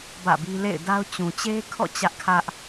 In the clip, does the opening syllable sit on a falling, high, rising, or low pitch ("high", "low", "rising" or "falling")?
falling